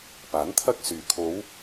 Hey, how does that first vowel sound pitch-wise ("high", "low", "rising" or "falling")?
rising